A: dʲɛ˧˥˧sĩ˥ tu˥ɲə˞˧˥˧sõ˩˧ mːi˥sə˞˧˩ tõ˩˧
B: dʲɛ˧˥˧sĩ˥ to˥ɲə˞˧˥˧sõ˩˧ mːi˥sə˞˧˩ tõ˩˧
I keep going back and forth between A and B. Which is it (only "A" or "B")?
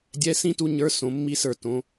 A